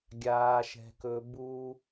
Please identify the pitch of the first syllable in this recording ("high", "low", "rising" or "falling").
high